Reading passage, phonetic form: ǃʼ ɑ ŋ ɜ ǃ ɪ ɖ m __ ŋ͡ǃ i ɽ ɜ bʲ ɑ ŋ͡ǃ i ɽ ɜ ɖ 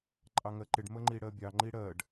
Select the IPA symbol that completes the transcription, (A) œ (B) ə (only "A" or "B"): B